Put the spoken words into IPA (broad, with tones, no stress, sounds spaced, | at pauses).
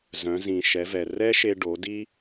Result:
z œ̃˩˧ z ĩ˩ ʃ ɛ˩˧ v ɛ˩ r ɛ˥ ʃ e˧ ɖ o˩˧ d i˥